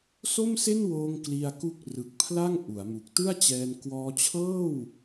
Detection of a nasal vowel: absent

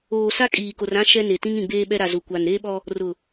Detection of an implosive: present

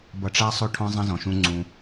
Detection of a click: present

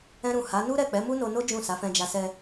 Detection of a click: absent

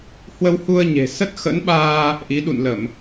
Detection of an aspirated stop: absent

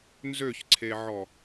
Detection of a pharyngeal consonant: present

